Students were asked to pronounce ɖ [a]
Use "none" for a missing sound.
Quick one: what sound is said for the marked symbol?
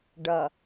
ɐ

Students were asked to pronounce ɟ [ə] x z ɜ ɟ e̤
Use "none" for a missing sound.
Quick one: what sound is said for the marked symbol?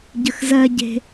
ə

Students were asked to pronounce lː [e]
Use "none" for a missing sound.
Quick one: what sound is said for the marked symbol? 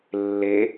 e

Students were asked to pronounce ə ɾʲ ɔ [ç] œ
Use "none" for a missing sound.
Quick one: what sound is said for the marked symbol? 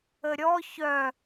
ç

